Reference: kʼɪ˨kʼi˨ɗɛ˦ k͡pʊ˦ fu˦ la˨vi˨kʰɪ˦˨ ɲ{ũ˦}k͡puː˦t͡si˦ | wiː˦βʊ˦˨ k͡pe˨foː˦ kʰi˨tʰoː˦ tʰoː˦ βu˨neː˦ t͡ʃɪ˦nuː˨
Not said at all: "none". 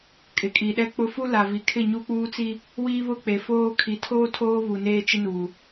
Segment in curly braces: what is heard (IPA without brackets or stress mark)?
u˦